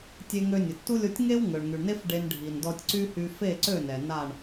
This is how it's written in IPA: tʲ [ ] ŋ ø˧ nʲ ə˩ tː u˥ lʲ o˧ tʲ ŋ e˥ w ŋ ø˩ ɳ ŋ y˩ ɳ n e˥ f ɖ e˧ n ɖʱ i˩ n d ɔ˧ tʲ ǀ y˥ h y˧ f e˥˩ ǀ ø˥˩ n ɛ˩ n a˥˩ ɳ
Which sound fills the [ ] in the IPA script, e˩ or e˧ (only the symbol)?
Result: e˧